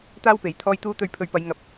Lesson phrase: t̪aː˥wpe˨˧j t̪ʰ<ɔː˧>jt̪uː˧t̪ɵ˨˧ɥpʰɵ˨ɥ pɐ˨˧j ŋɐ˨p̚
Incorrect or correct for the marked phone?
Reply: correct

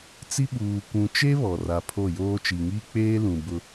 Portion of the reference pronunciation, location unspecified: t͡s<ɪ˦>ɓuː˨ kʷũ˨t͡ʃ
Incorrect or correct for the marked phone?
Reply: incorrect: i˦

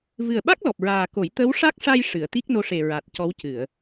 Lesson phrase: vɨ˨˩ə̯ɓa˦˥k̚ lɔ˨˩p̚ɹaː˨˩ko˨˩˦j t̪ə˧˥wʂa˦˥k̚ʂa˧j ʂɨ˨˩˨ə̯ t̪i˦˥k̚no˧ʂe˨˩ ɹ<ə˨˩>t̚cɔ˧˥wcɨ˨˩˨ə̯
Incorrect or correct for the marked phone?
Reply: incorrect: a˨˩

